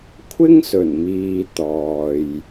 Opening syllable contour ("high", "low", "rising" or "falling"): high